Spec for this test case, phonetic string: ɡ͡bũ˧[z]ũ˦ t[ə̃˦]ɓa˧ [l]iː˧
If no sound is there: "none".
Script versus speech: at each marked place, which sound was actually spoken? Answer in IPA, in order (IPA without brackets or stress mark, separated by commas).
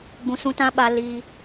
s, ã˦, l